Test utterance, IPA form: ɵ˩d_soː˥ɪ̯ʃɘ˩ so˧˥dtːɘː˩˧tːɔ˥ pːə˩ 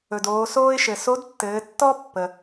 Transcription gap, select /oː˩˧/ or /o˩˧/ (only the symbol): oː˩˧